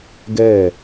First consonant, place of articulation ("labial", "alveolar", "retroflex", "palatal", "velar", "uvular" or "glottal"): velar